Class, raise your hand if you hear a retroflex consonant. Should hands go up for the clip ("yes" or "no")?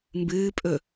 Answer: no